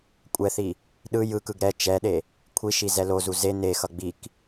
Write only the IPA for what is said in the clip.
kʷʼɛθi | ɗɯ jɯkɯɡ ɾɛ t͡ʃɛɗe | kʷʰiʃi zɛlozu ze nexʌ ɡ͡bik

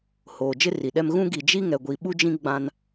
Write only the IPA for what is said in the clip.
hoː˨d͡ʒɪ˦ri˨ɗɛ˦m ɣũ˦ ɡi˨d͡ʒi˦ ŋɛ˨ɡʷi˨ ɓu˦d͡ʒĩ˦ ɡ͡bã˦n

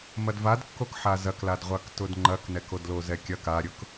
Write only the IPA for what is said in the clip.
mɐdvadkːok ħazɐkladʁʷak tʊdŋ͡ǃɐknɛkod lozɛkʲɐk aɾʲʊk

